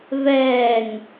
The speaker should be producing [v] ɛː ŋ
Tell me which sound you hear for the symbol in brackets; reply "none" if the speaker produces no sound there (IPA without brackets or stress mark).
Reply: v